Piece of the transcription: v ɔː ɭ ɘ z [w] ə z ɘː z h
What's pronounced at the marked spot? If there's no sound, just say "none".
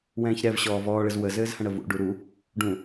w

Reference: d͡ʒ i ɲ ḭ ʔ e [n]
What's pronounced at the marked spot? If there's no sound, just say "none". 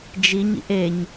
ɲ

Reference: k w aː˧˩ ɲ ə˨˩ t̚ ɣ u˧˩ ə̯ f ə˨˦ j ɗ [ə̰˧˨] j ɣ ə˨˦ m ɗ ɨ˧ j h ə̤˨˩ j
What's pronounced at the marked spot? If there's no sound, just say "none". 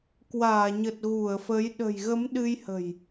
ə̤˨˩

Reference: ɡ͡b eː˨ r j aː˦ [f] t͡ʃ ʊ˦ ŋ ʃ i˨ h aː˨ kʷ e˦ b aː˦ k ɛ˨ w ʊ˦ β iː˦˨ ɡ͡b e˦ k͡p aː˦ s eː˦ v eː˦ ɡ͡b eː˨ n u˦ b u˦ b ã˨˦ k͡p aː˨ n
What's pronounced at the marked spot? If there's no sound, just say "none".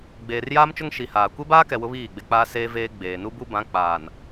m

